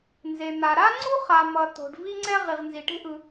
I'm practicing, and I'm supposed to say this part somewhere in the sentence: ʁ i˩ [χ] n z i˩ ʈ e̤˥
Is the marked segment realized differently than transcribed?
yes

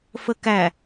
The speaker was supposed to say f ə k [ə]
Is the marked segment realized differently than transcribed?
yes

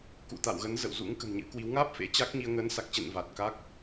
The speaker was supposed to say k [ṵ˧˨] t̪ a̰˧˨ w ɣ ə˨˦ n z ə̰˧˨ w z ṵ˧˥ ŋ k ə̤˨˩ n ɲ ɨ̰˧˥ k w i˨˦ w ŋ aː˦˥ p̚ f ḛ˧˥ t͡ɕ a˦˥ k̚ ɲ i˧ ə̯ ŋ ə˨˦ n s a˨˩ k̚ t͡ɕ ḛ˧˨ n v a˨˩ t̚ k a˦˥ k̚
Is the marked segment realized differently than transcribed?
no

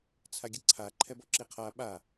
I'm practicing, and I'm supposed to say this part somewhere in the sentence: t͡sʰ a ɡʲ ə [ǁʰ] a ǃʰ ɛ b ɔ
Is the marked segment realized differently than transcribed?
yes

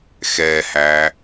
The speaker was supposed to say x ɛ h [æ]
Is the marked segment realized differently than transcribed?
no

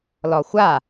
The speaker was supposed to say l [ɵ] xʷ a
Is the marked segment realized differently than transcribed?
yes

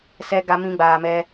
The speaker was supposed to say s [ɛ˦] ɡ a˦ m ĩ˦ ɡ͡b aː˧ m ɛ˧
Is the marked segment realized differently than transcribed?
no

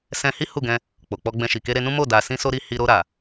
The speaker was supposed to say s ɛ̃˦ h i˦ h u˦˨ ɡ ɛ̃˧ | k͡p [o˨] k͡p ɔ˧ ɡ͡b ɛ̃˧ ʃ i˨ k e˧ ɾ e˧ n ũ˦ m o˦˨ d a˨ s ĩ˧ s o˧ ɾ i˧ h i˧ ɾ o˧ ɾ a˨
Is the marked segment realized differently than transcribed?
no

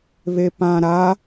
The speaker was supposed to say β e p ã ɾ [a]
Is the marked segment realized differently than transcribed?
no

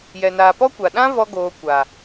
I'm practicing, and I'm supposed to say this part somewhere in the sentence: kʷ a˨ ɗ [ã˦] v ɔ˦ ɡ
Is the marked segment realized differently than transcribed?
no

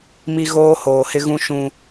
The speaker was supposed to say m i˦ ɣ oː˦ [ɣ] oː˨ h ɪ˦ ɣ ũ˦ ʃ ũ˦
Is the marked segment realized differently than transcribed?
yes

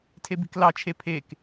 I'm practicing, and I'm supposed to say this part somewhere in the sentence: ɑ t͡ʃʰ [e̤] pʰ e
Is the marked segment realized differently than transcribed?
yes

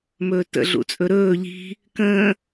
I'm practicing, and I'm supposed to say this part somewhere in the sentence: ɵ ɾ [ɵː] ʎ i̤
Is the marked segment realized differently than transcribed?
no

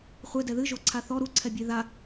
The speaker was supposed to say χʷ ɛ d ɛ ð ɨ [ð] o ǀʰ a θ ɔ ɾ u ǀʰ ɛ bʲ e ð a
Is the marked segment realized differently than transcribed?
yes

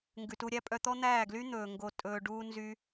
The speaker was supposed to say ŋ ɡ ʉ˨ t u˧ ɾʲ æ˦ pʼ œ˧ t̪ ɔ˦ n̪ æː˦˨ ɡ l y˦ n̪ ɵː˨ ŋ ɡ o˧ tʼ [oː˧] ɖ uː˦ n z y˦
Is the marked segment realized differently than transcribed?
yes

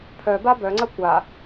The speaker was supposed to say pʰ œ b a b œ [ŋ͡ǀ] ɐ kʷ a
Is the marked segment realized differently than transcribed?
no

